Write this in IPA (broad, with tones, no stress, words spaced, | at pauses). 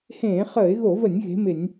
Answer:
hẽː˧˩˧χəː˧˩˧ɪ̯ɣo˧˩˧və˧˩˧nʲ ɣe̤˨˥mɪ˧˩˧nʲ